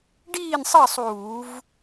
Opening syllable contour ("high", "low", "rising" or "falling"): falling